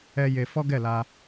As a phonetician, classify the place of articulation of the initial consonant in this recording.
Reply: palatal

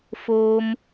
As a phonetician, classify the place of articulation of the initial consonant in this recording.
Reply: labial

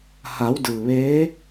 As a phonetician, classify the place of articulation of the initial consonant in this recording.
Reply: glottal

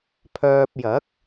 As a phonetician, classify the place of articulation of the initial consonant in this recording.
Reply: labial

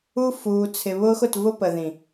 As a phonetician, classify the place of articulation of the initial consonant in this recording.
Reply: labial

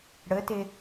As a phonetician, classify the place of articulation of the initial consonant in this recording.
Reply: retroflex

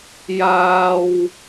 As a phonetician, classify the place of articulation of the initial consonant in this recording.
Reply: palatal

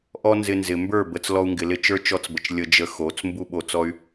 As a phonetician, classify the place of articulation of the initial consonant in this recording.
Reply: glottal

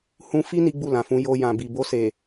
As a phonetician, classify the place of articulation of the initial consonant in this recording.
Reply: glottal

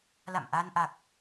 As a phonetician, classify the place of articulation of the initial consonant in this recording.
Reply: alveolar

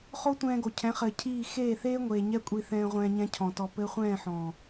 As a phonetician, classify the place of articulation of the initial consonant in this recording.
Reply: uvular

